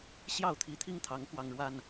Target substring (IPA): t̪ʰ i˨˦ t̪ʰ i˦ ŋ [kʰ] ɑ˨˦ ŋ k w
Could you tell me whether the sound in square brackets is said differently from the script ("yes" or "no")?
yes